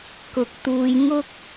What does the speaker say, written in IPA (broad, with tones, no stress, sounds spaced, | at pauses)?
k ʊ˨ k̚ t̪ uː˧ j ŋ ʊ˥ k̚